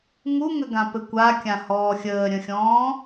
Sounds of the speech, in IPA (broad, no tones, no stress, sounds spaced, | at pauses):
ŋ u ŋ ə ɡ ã p ɘ kʷ a kʲ ã h ɔː xʲ əː ɾʲ ə̃ xʲ ɔ̃ː